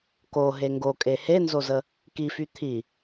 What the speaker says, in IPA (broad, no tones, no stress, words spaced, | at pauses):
koɦe ŋɡokʼe henzozə | kify t̪ʰi